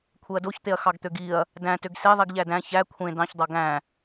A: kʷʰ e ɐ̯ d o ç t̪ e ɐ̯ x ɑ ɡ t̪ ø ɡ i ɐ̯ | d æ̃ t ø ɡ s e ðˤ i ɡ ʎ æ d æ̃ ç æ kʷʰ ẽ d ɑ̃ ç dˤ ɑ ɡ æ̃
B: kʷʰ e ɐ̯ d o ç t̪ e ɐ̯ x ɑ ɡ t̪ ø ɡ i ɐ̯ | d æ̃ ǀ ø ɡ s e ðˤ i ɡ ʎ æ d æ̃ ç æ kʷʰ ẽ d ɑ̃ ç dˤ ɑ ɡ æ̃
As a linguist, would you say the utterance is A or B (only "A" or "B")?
A